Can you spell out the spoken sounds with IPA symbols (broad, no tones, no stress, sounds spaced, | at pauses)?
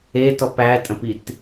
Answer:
e t ɔ p æ tʼ ə̃ p i t